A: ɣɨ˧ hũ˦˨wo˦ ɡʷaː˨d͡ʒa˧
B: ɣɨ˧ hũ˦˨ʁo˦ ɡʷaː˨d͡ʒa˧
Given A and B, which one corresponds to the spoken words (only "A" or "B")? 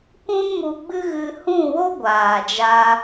A